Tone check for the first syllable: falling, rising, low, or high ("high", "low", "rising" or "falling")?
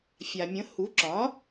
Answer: low